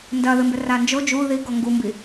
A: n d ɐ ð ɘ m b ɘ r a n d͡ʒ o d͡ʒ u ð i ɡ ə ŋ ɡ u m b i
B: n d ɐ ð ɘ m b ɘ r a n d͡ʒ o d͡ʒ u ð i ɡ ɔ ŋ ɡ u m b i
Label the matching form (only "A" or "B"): B